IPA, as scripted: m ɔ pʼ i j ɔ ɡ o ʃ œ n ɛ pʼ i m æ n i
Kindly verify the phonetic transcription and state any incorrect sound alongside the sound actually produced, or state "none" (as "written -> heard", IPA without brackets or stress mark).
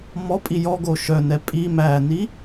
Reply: none